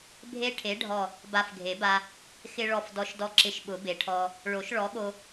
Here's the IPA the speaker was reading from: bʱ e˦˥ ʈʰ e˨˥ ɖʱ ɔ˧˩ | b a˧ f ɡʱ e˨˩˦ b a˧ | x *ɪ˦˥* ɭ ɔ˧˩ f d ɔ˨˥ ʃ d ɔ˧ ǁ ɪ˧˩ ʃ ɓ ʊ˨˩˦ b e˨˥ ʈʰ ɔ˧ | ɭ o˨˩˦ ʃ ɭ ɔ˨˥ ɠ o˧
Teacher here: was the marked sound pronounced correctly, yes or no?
no